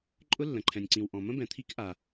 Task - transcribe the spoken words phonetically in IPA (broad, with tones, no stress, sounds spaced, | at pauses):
ǃʼ ʊ˦˥ lː ə̃˨ ǃʰ ɛ̃˨ nʲ ǀ ĩ˨ w ʔ ɔ̃˨ m ə̃˦˥ b ɛ̃˨ t̪ʰ i˦˥ k ʔ a˨